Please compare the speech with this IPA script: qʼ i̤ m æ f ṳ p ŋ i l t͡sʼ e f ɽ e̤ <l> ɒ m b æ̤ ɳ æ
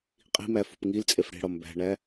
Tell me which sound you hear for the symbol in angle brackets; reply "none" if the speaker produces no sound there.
ɽ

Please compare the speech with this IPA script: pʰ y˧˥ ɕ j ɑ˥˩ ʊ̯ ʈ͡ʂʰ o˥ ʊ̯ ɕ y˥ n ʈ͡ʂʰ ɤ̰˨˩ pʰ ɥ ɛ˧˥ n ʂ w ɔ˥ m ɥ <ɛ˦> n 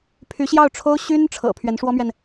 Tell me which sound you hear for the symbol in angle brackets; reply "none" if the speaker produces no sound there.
ɛ˨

